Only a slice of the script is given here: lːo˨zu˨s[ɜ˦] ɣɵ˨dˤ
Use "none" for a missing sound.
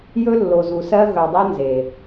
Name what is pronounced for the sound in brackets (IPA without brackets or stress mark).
ɜ˦